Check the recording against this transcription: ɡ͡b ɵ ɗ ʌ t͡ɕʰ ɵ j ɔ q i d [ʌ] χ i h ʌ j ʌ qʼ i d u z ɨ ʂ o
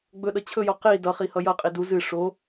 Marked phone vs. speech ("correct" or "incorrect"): correct